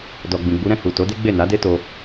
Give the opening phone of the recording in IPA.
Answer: d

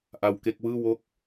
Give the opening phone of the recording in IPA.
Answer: ʔ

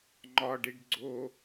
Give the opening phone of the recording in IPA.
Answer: ŋ͡ǃ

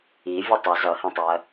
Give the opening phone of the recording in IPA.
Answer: i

